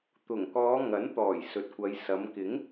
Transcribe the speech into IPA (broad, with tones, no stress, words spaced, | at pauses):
t̪ʊ˨˩ŋkɔː˨˧ ŋɐ˨˥nt̪ɔː˨˩j sɵ˨t̚kʷɐ˨˧j sɐ˨˧m kɪ˨˥ŋ